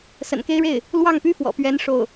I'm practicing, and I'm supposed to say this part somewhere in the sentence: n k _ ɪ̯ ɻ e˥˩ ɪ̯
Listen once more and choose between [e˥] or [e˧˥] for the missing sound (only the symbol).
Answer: e˥